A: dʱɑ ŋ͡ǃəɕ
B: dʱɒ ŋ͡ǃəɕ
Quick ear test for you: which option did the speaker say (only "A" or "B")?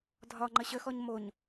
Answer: B